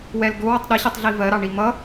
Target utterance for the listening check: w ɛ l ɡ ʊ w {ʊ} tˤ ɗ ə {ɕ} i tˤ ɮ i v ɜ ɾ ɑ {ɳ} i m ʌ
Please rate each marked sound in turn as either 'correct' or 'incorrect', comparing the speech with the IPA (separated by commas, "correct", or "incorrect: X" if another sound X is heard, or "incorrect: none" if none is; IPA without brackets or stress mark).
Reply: correct, correct, correct